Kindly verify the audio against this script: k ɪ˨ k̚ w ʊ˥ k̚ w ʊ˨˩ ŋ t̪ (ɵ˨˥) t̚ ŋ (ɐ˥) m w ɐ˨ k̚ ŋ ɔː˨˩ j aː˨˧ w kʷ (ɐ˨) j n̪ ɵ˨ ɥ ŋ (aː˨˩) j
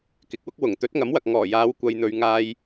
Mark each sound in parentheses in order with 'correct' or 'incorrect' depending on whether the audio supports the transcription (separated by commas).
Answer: correct, incorrect, correct, incorrect